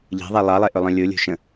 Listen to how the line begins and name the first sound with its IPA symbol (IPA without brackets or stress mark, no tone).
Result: ʎ